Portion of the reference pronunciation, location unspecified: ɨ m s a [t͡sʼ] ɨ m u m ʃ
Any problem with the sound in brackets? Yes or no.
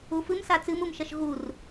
yes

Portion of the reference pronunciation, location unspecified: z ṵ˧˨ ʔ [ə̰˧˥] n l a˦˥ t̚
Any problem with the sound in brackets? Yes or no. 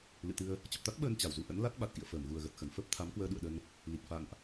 no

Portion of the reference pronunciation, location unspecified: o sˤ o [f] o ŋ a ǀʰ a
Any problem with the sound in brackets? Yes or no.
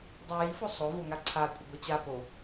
yes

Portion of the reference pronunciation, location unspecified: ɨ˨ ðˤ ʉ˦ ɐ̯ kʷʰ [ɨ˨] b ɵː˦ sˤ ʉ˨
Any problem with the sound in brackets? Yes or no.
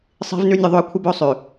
yes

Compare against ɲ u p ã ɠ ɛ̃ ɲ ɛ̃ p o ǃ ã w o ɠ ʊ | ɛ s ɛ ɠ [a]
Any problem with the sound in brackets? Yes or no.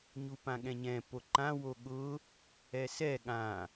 yes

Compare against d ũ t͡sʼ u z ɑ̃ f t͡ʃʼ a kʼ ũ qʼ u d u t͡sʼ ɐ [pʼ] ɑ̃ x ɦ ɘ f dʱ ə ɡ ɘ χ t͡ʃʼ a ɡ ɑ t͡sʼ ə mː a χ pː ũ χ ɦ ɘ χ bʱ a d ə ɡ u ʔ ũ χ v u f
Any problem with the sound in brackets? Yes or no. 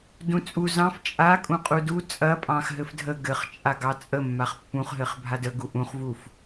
no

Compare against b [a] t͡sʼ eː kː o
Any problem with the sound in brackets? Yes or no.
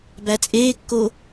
yes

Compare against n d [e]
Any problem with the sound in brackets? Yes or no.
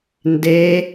no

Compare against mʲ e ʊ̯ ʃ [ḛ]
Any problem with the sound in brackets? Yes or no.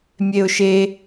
yes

